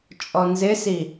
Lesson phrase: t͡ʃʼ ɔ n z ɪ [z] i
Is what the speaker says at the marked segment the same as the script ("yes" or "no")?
no